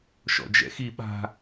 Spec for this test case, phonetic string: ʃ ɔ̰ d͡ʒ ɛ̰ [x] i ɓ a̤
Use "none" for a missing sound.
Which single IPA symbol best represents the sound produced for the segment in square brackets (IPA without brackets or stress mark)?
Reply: x